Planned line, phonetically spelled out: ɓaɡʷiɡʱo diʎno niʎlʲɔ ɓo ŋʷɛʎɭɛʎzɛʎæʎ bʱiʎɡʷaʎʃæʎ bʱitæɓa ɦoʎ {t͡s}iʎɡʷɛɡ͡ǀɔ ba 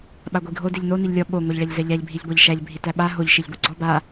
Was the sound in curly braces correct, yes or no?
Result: no